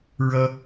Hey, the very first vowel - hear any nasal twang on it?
no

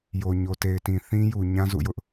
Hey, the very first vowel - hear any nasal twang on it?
no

